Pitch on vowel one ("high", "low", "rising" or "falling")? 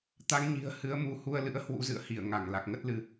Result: rising